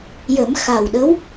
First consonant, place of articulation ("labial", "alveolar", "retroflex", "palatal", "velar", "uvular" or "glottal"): palatal